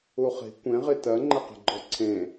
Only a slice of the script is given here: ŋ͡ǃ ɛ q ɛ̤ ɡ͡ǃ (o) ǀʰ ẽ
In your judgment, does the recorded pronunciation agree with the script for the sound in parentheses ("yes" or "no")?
no